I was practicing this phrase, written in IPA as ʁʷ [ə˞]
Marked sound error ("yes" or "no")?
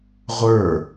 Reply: no